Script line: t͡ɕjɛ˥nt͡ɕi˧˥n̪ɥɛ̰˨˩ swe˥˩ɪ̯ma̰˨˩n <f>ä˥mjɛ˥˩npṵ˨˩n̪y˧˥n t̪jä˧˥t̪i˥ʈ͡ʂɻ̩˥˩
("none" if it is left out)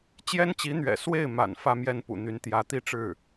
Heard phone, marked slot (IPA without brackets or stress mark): f